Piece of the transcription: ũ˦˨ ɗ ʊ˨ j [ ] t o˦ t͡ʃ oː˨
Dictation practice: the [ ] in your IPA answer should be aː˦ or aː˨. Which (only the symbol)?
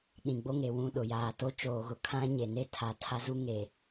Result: aː˨